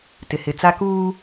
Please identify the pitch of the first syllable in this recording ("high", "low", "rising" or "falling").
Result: low